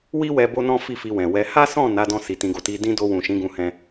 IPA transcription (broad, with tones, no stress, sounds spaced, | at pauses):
w i˦ w ɛ˧ b o˦ n ɔ̃˦ f i˦˨ f i˧ w ɛ̃˨ w ɛ˧ h a˦ s ɔ̃˦˨ n a˨˦ d ɔ̃˧ s i˧ t ĩ˧ ɡ o˧ t i˦ d ĩ˦ d o˧ w ũ˨ ʃ ĩ˨˦ ɡ ũ˧ h ɛ̃˧